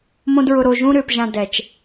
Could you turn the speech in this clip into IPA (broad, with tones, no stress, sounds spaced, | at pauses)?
m õ˦ d ɹ ʊ˧ ɾ o˧ ʒ ũ˦ ɾ ʏː˧ p ʒ ã˧ d ɛ˨ t͡ʃ